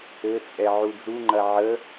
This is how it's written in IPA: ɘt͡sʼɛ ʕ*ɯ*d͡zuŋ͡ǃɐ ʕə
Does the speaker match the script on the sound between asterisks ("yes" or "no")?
no